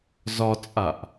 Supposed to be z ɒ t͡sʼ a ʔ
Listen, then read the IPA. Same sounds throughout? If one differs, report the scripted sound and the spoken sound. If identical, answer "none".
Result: none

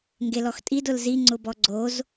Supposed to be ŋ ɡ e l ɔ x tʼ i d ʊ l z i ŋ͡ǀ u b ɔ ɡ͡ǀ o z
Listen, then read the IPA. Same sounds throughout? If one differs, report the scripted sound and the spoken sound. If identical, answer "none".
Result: u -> ʊ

